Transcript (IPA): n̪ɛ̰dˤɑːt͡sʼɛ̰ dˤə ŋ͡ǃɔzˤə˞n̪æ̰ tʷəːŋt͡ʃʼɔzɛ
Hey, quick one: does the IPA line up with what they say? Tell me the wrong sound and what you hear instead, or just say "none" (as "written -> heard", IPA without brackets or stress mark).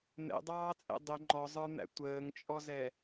none